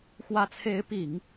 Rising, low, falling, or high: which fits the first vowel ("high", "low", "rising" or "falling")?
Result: rising